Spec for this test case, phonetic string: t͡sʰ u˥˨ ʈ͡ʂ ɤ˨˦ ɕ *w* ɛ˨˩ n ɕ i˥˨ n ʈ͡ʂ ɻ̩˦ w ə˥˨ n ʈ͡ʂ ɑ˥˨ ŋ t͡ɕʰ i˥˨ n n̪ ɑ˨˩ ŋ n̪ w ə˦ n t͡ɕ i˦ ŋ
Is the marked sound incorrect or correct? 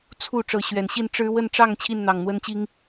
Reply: incorrect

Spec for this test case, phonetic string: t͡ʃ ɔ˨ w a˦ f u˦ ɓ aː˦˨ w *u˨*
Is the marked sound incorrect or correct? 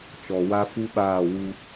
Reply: incorrect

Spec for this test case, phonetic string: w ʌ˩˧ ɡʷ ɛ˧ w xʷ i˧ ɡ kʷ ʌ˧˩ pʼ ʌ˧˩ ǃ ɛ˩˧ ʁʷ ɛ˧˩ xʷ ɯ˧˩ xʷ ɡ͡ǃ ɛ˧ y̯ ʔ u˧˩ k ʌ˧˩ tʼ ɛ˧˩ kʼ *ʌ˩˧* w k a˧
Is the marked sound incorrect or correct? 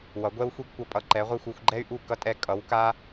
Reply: correct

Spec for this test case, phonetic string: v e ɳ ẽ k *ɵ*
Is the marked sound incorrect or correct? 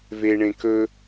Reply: correct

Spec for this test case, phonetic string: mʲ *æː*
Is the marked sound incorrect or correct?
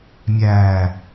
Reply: correct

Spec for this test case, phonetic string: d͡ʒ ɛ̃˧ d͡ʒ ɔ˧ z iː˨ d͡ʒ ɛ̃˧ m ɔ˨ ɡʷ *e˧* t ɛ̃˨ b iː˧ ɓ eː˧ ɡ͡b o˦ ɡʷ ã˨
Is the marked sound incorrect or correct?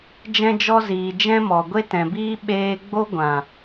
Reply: correct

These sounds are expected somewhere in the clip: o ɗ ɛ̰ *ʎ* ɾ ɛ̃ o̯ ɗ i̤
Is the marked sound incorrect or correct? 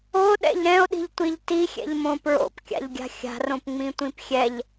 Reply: correct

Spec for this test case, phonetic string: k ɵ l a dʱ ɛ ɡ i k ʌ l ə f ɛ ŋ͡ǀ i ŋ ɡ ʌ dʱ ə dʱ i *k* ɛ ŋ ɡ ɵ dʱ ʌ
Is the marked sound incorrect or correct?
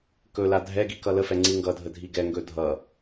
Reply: incorrect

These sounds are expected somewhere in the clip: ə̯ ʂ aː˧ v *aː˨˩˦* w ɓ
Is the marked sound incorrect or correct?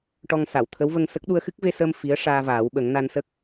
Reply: correct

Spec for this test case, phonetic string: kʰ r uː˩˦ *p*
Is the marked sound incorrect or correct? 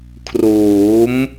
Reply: incorrect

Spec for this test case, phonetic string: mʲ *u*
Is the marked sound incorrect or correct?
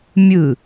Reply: incorrect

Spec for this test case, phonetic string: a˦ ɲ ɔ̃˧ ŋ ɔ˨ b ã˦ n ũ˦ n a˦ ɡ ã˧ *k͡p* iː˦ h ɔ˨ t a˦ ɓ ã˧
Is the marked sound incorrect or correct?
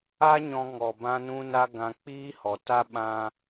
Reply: correct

